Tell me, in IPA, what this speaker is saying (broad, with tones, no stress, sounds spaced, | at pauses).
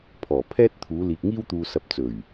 pʰ ɔː˨˩ pʰ ɛː˥ t̚ t̪ʰ uː˨˧ l iː˨ k̚ ŋ iː˥ w t̪ uː˨ s ɐ˨˥ p̚ t͡s ɵ˨˩ ɥ